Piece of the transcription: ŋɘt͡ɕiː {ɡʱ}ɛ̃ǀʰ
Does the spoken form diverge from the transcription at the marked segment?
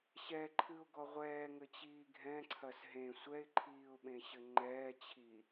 no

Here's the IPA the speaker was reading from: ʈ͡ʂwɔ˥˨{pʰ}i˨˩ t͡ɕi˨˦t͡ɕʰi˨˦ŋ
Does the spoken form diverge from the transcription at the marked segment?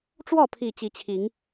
no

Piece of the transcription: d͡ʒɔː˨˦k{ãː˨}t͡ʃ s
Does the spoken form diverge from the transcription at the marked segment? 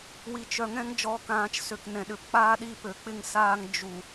no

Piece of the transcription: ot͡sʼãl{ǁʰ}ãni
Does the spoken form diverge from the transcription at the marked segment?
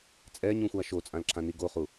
no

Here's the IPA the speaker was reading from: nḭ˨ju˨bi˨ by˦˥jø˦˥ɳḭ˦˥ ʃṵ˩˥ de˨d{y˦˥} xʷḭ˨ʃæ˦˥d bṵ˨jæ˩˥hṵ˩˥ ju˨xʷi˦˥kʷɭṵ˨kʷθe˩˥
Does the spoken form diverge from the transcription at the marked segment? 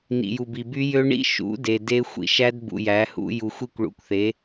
yes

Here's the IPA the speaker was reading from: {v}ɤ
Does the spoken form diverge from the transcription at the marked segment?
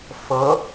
yes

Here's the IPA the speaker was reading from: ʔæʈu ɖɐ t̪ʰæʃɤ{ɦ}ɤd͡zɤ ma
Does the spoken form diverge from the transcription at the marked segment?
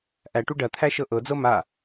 yes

